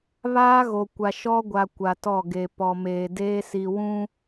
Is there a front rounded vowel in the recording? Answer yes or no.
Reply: no